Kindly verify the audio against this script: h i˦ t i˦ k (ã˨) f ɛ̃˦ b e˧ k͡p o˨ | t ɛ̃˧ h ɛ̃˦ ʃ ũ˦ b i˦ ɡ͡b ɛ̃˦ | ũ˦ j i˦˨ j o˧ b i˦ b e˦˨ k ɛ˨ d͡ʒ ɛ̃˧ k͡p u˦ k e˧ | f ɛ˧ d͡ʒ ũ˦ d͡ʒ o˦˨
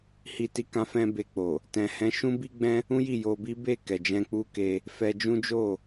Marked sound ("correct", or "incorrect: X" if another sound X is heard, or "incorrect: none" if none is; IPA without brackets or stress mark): incorrect: ã˦